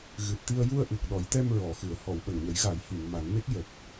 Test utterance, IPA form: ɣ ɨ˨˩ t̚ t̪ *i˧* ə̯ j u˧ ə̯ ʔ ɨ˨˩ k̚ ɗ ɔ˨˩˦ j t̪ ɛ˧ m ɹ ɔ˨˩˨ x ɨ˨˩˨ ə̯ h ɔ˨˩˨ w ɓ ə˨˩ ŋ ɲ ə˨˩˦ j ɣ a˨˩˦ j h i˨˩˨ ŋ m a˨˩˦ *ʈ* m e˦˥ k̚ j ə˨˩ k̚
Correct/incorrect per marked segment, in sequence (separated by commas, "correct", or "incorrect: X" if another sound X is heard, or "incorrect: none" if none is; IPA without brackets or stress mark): correct, incorrect: n